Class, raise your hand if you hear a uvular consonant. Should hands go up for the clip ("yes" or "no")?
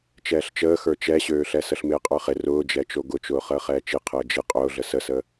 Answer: yes